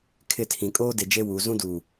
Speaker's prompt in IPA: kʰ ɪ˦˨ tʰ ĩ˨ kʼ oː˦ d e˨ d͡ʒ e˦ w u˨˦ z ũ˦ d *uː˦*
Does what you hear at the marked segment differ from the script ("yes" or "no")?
yes